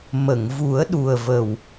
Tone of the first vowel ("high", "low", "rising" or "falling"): low